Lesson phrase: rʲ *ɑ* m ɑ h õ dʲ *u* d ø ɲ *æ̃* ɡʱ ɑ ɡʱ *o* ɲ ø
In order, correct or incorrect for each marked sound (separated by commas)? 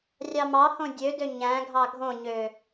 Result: correct, incorrect, correct, incorrect